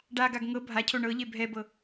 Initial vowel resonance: oral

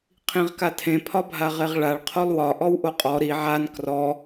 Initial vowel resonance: nasal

